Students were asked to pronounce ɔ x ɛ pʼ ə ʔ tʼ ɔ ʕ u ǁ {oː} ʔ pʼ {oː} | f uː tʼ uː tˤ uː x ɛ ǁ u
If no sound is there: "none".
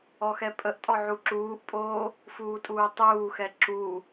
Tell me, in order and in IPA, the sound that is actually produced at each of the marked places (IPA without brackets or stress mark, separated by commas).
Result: uː, oː